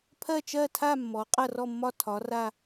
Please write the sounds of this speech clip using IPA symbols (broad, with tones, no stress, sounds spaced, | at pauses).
pʰ ɜ˦˨ t͡ʃ ɜ˦˨ tʰ a˦˨ mː ɔ˩˧ qʼ ɐ˦˨ r ɔ˦˨ mː ɒ˦˨ tʰ ɒ˩˧ r a˦˨